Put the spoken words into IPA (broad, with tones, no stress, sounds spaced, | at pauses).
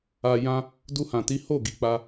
a˨ j ã˧ | d u˧ h ã˨ t i˨˦ h o˦˨ ɡ i˨ k͡p a˧